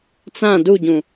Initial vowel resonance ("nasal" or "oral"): nasal